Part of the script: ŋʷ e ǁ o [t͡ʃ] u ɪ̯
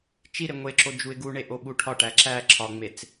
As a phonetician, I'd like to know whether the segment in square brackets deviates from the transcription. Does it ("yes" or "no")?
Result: yes